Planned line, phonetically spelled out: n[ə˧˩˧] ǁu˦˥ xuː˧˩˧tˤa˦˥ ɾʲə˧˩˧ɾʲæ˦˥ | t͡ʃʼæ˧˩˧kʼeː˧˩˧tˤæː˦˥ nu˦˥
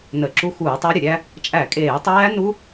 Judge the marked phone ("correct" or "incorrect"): correct